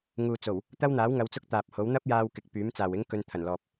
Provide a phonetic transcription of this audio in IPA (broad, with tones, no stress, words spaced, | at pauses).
ŋuː˨t͡so˨˩w | t̪ɐ˥wn̪aː˨˥wŋɐ˨˧w t͡sʊ˥k̚t̪aː˨p̚ho˨˥w n̪ɐ˥p̚jaː˧w kɪ˨k̚pyː˨˥m t͡saː˨wɪ˥ŋ kɵ˧nt̪ʰɐ˨˩nlɔː˨p̚